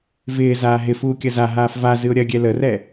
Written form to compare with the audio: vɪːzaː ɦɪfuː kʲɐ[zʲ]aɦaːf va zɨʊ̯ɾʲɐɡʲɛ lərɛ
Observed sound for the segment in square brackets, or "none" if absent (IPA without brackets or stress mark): z